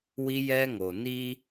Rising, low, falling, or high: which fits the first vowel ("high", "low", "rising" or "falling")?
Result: high